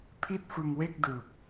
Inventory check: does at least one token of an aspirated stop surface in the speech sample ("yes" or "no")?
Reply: yes